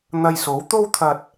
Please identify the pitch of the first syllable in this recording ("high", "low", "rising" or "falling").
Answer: low